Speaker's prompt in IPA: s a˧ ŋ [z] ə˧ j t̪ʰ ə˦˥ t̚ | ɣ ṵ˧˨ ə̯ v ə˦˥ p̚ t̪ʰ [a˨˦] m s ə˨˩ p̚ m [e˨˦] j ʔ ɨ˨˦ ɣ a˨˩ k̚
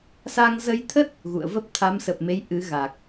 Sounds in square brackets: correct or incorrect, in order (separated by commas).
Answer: correct, correct, correct